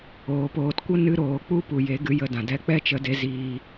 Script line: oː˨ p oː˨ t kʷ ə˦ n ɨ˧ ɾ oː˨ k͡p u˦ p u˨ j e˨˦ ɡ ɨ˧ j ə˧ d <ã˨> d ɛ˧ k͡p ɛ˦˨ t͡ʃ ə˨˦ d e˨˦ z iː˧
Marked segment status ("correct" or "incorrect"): correct